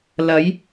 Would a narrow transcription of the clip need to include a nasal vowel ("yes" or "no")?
no